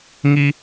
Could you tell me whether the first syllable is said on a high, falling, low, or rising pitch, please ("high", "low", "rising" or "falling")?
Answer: low